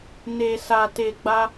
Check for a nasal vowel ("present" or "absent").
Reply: absent